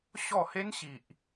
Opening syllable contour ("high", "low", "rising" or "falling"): falling